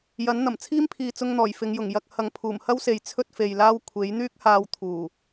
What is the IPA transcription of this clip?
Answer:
j ɐ˨˥ n n̪ ɐ˨˩ m t͡sʰ iː˥ m pʰ iː˨ t͡s ʊ˧ ŋ n̪ ɔː˨˩ j f ɪ˨˧ ŋ j ʊ˨˩ ŋ j ɐ˧ k̚ h ɐ˨ ŋ pʰ uː˨˩ m h ɐ˥ w s e˨ j t͡sʰ ɵ˥ t̚ f e˨ j l aː˥ w kʷʰ e˨˥ j n̪ yː˥ k̚ h aː˧ w t̪ʰ uː˨˩

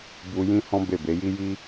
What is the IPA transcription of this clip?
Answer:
b u˧ j ĩ˦ h ɔ̃˦ b e˦˨ b e˨˦ j i˦ j i˦

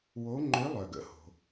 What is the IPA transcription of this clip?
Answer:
w o˧˥ ŋ͡ǃ ø˧˥ lˠ œ˩ ɡ ə̰˩˥ h o̤˩

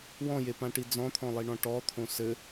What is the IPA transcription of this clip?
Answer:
w ɔ̃ j e p ã ʈ i d͡z ɔ̃ t̪ʰ ɔ̃ lˠ i ɳ ɔ̃ ʈ ɔ t̪ʰ õ s ɘ

